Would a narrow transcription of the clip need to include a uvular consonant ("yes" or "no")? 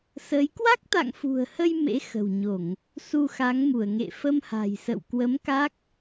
no